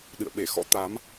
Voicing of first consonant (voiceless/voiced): voiced